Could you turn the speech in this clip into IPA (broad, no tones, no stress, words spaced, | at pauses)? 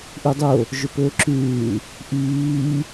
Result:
ʔudˤo | ʒøpɵːǁʉː | ʔiː